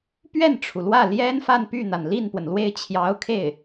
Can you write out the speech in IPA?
pɥɛ˥˩nʈ͡ʂʰu˩lwä˥˩ ljɛ˥n fa˥˧npy˥˩n̪a˩n li˥˩npwə˩nlwe˥˩ɪ̯ t͡ɕʰjɑ˧˥ʊ̯kʰe˥˩ɪ̯

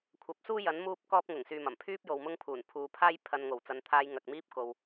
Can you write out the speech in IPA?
kʷʰɐ˨˥p̚suː˥jɐ˨˥n muː˥p̚ kɔː˥p̚ŋʊ˨˩ŋ syː˨mɐ˨˩mpʰyː˥p̚jo˨w mʊ˥ŋ pʰuː˨˩npʰuː˨pʰaː˥j pʰɐ˧n ŋo˨˩wt͡sɐ˨˧nt̪ʰaː˧j ŋɐ˨k̚miː˥p̚ ko˨w

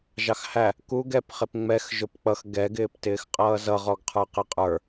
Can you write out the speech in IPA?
ʒɑxhæ | kuɡ ɛp χɪpŋ͡mɛx ʒʊpk͡pʌx ɡɛ ɡɪːptɪːxqʼʌːzʌ ʁɔɡqʰə˞qɪqʼə˞

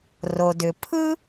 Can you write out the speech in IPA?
ro˩dʏ˩pʰɯ˥

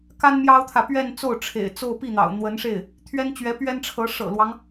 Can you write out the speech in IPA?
ka˥nmjɑ˥ʊ̯t̪ʰä˨ pɥɛ˥˧nt͡so˥˩ʊ̯ʈ͡ʂʰḛ˨˩ɪ̯t͡so˥˧ʊ̯ pi˥˩n̪ɑ̰˨˩ʊ̯n̪wə˧˥nʂe˥˩ɪ̯ | t̪ʰɥɛ˥nt͡ɕɥɛ˧˥ pɥɛ˥nʈ͡ʂʰɤ˧˥ ʂɤ̰˨˩lwɑ˦ŋ

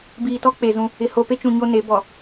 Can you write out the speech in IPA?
biː˨tɔ˦ k͡pe˨zũ˦ | ɪ˨ ho˨pe˦t͡ʃũ˨ ɲo˦ne˨˦ bɔ˨

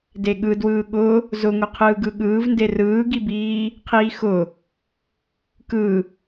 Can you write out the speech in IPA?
deɠɯ dwɯːɠʊ | zʊŋʊqʰɯːɡɯ ɠɯːvnde rɯːɡibiː | qʰiːxʊ | kɯ

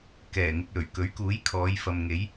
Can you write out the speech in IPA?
kɛː˨˩ŋɪ˨k̚ lɵ˨˩ɥ kɵ˨˥ɥkuː˨˥j kʰɔː˨˧jfɐ˨m ŋe˨˥j

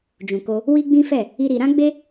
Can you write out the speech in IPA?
d͡ʒũ˨ko˧ | wi˦ɡ͡bĩ˦fɛ˦˨ | i˦ɾi˧ ɾã˦ɡ͡be˦

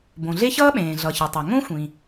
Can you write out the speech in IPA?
bõ˩ɮe˥çʌː˥ɓẽː˩ ɮʌ˩çe˩tˤʌ˩ ŋõ˥xʷĩ˩

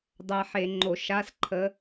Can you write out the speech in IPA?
dˤæ˧ħe˧˩˧ŋ͡ǃo˧˩˧ ʃa˧˥˧sǃʰə˧˥

